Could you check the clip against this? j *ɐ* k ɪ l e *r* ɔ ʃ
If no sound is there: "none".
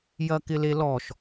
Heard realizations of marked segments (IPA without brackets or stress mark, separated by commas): ɐ, l